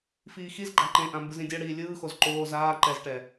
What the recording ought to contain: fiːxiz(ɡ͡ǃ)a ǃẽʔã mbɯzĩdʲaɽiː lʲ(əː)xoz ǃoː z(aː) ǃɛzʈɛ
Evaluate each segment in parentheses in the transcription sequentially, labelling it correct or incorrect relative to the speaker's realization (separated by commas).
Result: correct, incorrect, correct